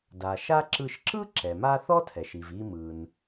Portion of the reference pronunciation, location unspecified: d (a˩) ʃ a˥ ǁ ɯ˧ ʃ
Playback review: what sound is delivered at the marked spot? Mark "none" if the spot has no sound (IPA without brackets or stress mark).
a˩